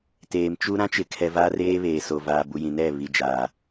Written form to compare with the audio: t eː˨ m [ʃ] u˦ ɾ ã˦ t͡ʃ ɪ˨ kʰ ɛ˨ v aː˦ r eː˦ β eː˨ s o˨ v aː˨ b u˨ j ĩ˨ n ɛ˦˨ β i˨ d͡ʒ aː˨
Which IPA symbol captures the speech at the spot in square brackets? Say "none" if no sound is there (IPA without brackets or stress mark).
t͡ʃ